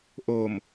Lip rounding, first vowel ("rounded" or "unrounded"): rounded